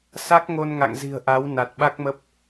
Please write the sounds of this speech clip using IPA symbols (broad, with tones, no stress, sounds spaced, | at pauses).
s a˦˥ k̚ ŋ o˧ n ŋ a̰˧˨ ŋ z i̤˨˩ ə̯ ʔ a˨˦ w n a˨˩ t̚ ɓ a˦˥ k̚ m ə˦˥ p̚